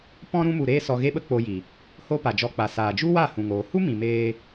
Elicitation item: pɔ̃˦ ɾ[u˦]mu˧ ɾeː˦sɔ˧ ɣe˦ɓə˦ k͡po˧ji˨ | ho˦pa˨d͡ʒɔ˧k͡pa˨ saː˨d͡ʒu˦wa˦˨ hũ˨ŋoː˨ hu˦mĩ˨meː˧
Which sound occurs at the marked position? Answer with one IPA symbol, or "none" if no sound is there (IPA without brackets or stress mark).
ũ˦